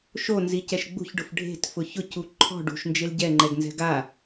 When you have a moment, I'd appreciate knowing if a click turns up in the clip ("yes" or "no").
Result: yes